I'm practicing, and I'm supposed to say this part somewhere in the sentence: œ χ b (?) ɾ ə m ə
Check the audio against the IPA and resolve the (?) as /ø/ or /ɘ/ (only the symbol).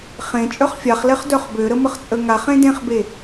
ø